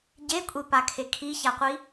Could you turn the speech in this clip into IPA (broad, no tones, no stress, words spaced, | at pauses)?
ɟekʷʼepakʰe kʰiçaqʷi